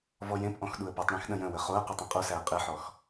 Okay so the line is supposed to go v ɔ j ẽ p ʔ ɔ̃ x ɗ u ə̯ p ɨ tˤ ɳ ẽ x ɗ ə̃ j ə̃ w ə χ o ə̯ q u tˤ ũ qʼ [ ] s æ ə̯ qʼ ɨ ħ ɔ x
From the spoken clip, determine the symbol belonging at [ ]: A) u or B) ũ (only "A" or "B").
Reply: A